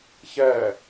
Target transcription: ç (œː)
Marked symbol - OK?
no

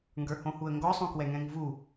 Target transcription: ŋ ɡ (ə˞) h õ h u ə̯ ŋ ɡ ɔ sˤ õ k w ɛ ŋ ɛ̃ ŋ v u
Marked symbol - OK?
yes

